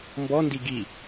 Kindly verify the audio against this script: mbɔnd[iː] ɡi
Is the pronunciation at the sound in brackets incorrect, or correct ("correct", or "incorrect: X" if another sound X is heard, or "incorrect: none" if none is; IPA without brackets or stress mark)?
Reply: incorrect: i